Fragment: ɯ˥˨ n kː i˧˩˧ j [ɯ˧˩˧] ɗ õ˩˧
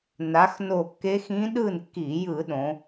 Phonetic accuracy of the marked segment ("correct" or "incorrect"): correct